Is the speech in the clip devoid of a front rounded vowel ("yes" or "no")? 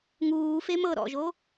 yes